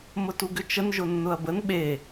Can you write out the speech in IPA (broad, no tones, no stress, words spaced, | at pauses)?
mʊtuɡʏt͡ʃən ʒʊnːʊɐ̯bən ɓe